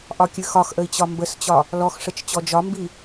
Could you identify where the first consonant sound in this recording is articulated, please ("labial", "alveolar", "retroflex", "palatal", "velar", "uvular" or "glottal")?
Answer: glottal